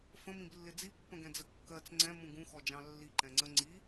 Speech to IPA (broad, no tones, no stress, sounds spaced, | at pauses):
f ə̃ m ĩ b lː ɪ d͡z i pː ə̃ ɡ ɛ̃ d͡z ə kː ɜ t͡s ŋ͡ǀ ɛ̃ m ũ ɡ ũ x ɔ d͡ʒ ɑ̃ lː i ǃ ɛ̃ ŋ͡ǀ ə ŋ͡ǀ i